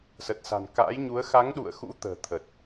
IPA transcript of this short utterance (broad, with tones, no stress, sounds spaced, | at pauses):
s ə˨˩ t̚ s a̤˨˩ n k a̰ː˧˥ j ɲ u˨˦ ə̯ x a˨˦ ŋ ɗ ṵ˧˨ ə̯ x ṵ˧˥ t̪ ə̤ː˨˩ t̪ʰ ə˨˩ t̚